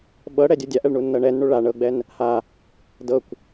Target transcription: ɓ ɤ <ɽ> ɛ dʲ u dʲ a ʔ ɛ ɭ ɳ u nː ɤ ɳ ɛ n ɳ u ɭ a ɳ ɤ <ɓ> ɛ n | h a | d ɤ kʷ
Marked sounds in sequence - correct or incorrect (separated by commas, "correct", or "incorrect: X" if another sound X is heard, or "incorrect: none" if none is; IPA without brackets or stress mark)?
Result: correct, incorrect: ɡ͡b